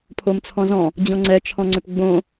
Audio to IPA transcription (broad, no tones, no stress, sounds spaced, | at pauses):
pʰ o m t͡sʰ ɔ̃ z ɔ̃ | d͡ʑ ɔ̃ ŋ͡ǀ ɛ t͡ʃʰ ɔ̃ ŋ͡ǀ ʏ p ɡ͡b õ